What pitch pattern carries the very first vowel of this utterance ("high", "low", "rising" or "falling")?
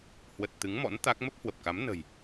low